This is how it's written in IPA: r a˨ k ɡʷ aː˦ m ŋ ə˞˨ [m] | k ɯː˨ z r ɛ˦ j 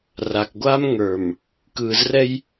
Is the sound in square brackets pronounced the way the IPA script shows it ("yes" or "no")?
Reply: yes